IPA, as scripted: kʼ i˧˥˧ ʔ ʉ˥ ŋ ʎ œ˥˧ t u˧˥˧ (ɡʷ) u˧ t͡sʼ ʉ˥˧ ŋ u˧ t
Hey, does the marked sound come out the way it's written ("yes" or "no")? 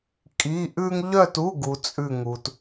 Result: no